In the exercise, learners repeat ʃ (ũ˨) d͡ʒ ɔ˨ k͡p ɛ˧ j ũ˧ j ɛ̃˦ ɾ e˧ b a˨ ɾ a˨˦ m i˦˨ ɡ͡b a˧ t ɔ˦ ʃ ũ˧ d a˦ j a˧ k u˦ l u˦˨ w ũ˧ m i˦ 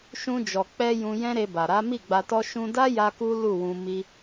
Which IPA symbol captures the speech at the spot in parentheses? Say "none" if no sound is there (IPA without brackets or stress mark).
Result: ũ˧